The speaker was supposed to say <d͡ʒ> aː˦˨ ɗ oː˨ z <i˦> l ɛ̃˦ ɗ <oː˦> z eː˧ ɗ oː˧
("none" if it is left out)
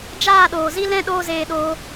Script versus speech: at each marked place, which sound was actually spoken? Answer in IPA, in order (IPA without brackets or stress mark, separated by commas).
d͡ʒ, i˦, oː˦